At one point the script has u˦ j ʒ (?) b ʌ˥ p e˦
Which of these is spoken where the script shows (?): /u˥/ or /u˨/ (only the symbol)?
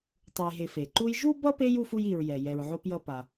u˥